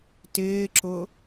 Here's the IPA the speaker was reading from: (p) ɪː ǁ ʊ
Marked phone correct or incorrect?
incorrect